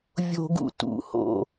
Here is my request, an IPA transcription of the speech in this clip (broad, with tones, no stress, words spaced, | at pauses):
vʲo̤˥ɡṵ˥tṵ˧˥˧ ho̰˥˧